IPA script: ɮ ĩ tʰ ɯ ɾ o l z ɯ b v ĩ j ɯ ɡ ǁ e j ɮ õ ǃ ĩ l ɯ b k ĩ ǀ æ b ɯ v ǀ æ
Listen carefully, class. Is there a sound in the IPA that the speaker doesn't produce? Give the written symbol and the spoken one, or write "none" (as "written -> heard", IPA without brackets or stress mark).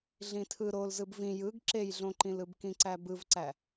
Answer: none